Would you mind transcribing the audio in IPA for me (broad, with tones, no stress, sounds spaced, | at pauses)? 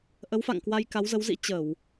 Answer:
ʔ ə˨˦ w f a̰˧˨ ŋ k w a˧ j k a˨˦ w z ə˨˦ w z ḭ˧˥ t͡ɕ ə˧˩˨ w